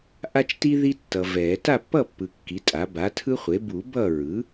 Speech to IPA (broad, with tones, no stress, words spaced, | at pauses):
ʔa˦t͡ʃti˦ ði˦ tːʌ˨vɛ˨˩˦ ta˥˨pːʌ˥˨pːɯ˨ kːi˩˥tʼa˩˥ ba˩˥tʰɯ˦χʷe˩˥ bu˨˩˦ bʌ˥˨ ɹɯ˩˥